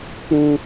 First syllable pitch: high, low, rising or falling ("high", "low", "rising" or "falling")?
high